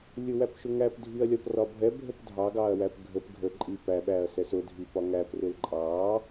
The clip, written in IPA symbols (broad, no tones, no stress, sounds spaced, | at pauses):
lʲ ʊ w æ p ʃ ʊ ŋ æ p dʱ i ɐ̯ lʲ ɒ p r ɒ bʱ ɛ bʱ ə p dʱ ɑ ɡ ɑ ɐ̯ w æ p ɡʱ ə p ɡʱ ə ǃʼ i p æ ɓ æ ɐ̯ s ɛ s ʊ dʱ i p ɒ ŋ æ p r ɪ l ǃʼ ɑ